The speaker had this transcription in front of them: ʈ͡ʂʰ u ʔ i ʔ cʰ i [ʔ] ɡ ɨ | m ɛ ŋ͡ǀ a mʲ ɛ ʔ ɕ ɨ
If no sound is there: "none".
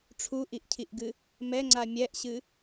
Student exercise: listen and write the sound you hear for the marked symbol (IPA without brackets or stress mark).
ʔ